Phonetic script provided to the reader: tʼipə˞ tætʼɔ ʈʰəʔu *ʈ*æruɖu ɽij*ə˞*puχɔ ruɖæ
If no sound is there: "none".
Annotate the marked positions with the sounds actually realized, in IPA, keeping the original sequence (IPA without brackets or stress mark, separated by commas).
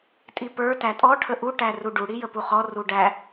ʈ, ə